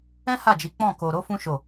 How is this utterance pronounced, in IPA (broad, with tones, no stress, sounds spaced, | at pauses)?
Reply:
ɛ̃˦ h a˦˨ d͡ʒ i˨˦ k͡p ɔ̃˦˨ k o˧ ɾ o˦ f ũ˦ ʃ o˦˨